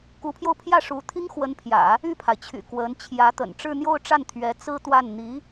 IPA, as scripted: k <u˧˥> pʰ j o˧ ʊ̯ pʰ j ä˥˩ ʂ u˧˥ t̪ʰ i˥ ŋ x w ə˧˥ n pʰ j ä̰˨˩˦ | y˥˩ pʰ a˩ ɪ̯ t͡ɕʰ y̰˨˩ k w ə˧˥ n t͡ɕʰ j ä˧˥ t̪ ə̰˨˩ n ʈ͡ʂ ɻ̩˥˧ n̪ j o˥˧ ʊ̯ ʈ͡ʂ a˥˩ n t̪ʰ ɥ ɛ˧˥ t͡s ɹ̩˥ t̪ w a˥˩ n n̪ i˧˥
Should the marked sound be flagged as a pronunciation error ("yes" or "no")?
no